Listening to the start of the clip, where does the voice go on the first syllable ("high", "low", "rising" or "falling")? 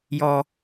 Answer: low